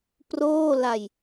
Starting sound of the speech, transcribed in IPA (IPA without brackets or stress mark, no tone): p